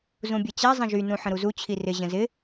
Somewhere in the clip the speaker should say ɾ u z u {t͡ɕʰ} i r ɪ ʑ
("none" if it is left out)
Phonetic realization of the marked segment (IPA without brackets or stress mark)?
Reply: t͡ɕʰ